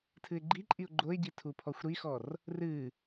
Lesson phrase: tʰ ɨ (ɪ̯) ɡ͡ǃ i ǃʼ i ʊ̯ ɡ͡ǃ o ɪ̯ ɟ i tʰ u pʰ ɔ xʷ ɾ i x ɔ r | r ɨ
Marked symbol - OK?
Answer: yes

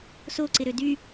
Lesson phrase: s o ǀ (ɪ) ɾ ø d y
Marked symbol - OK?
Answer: yes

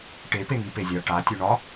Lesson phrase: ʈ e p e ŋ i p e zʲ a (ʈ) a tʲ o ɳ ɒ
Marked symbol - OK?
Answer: yes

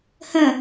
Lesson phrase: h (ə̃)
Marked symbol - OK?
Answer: yes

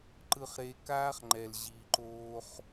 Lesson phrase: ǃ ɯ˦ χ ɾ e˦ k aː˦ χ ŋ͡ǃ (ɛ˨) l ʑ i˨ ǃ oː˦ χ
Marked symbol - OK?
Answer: yes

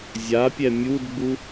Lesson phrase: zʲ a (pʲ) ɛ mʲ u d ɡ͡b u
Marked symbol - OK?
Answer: yes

